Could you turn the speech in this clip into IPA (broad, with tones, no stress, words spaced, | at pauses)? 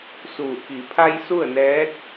suː˧˩ ki˩˧pʰa˧j su˥˨ə̯nɛː˧˥t̚